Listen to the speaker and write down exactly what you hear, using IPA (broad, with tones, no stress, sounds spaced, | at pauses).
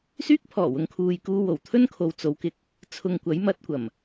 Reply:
s yː˥ k̚ pʰ ɔː˨˩ w ʊ˨ ŋ kʰ uː˨ j k uː˧ w o˨˩ w t̪ʰ ɵ˥ n kʰ o˨ w t͡s o˨˧ w k ɪ˨˥ k̚ | t͡sʰ ʊ˧ ŋ kʷ ɐ˨˥ j m ɐ˨˥ t̚ kʷ ɐ˨˩ m